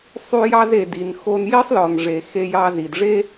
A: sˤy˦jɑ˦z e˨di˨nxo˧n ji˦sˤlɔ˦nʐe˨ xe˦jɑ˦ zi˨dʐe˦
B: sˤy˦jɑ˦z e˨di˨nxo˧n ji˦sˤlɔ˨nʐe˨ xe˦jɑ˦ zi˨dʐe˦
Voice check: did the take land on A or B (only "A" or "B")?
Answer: B